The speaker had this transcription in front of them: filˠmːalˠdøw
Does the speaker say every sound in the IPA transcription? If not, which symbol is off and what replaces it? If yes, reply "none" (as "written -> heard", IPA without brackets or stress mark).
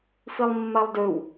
none